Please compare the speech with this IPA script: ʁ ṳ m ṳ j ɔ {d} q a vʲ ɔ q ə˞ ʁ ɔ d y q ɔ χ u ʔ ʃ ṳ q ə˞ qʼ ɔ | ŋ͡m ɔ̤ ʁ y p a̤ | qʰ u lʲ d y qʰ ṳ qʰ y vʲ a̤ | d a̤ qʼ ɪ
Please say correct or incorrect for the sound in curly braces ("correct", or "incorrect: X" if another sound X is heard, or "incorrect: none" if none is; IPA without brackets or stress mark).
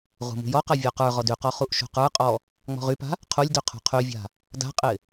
incorrect: none